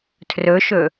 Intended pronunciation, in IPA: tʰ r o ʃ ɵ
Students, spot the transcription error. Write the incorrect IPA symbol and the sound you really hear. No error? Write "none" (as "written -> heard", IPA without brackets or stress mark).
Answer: o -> ɵ